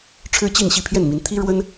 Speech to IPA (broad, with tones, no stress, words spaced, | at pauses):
ʈ͡ʂʰɻ̩˥t͡ɕi˥˧n ɕi˥˧pʰjɛ˥˩nmi˧˥n t̪ʰi˥ ɻwə˥n